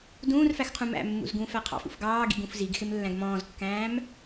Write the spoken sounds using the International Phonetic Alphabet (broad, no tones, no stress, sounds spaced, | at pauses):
d ũː r f æ x qʰ ũ m æ̰ mː ṵ z ɡ ũː f æ qʰ ɑ̰ f ṵ f ɡ ɑː ɡ ḭ ɡ ũ f z i ɡ x ɪ m lː æ̃ ɡ m ɔ̃ː z kː æ̃ː m